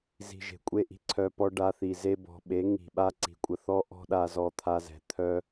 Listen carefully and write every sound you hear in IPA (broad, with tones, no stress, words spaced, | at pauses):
zi̤˨ ʒe̤˨kʷʼe˦˨ʔi̤˦ ǀʰœ˧pɔ˦ ɖa˧θi˨ ze˧bɔ̤˨ɓe˨˦ ŋi̤˨ɓa˦ ǀi̤˨kʷʼə˧ θɔ˦ʔɔ̤˦ɗa˧ zɔ˧t̪ʰa˧zɛ̤˨ t̪ʰœ˦